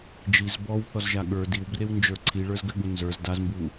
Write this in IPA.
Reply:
d͡ʒ i z b ɔ w θ ɔ z ʒ a ɠ ə˞ d i w b r e w n d͡ʒ ə˞ ǀʰ i ɭ ə˞ z ɡ ɘ ɠ u n z ə˞ z d a z m b u

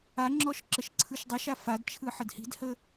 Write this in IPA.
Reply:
a ŋ͡ǁ ɔ ʃ ǁ ə ʃ ǀʰ ɯ ʃ dˤ ə ʃ a f a d t͡ʃʰ ɯ ħ ə d h i̤ d h ə

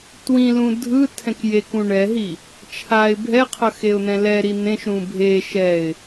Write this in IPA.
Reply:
t w ĩ l ũ dʱ ɯ tʰ ɛ̃ k j e k ũ ɳ ɛ ɦ i | t͡ʃʰ a ɪ̯ bʱ ɛ qʰ ʌ x e ʊ̯ n̪ ɛ̃ l ɛ ɾ i n̪ ẽ ʃ ɾ ũ bʱ e ʃ ɛ ɪ̯

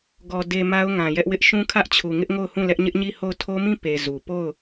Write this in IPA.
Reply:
ɡ ɔ˨ d e˨ m a˦ ʊ̯ ŋ ã˨ j ɛ˦ ʔ w ɪ˦ ʔ ʃ ũ˦ kʰ ä˦ ʔ t͡ɕʰ u˨ ŋ ɪ˦ ʔ ŋ o˦˨ ʊ̯ h ũ˦˨ l ɛ˦ ʔ ɲ ɪ˦ ʔ ɲ i˦˨ h o˦˨ ʊ̯ tʰ o˦ m ĩ˦˨ p e˨ z u˨ p o˦˨ ʊ̯

